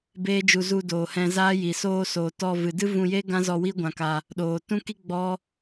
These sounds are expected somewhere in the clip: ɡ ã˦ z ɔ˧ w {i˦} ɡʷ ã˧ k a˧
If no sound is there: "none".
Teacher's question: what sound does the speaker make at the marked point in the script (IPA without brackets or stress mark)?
i˦